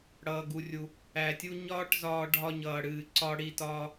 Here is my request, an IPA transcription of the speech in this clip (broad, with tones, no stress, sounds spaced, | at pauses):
ɽ ʌː˩ ɡ u˩ rʲ u˩ | æ˩ tʲ u˧ ɲ ɒː˥ ʈ z ɒː˧ ɖʱ ɒ˧ ɲ ʌː˩ ɽ ɨː˩ ǀ ɒ˧ ɽ i˧ t ɒː˧